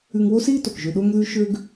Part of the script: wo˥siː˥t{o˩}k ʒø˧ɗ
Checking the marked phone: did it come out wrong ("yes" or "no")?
no